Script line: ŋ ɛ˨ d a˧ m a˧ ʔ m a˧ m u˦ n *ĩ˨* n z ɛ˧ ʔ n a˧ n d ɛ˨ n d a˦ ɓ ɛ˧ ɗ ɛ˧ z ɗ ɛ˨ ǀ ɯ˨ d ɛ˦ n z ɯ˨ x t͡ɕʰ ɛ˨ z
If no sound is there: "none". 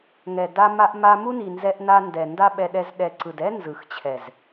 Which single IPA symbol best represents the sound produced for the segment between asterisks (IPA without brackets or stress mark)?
i˨